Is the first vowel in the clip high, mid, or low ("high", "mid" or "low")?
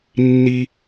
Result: high